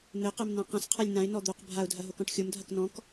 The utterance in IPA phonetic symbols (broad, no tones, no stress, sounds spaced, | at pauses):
n̪ ɘ q ɘ m n ã q ã s qʰ a lʲ n̪ ã ɪ̯ n ɔ d̪ o q bʱ a ʊ̯ dʱ ɐ ɦ o k ɔ̃ ʈ xʲ o m dʱ ɐ k n ɔ̃ k